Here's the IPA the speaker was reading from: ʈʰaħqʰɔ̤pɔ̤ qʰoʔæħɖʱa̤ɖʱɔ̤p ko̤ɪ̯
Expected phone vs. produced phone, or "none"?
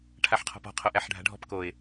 o̤ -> o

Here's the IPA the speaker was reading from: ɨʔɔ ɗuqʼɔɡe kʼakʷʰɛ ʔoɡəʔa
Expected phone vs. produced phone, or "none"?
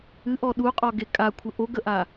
ɛ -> ə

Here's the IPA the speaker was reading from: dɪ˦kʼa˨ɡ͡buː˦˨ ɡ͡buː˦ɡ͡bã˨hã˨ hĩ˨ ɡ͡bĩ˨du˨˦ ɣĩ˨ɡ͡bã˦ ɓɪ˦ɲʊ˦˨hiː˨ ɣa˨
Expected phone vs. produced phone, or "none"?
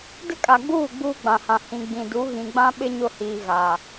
none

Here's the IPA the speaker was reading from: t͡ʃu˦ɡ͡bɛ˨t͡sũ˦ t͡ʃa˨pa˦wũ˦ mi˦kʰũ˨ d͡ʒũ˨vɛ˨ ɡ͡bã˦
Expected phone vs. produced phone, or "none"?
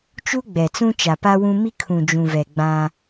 none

